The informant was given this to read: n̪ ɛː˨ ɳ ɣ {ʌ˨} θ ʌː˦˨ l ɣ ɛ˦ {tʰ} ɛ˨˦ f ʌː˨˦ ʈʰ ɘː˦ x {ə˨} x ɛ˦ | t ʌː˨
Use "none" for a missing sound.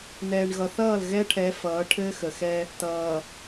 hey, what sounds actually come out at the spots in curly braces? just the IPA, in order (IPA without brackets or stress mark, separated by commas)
ʌ˨, ʈʰ, ə˨